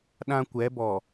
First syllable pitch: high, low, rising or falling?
high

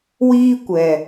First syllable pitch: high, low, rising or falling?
high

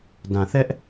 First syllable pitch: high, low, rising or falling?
low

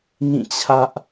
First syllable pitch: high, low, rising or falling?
falling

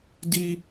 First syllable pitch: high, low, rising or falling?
high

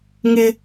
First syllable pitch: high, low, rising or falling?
high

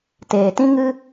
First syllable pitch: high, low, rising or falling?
low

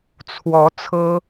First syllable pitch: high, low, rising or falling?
rising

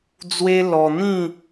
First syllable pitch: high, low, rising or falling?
high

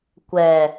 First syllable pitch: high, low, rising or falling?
low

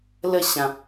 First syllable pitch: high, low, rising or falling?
falling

